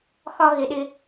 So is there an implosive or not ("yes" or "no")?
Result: yes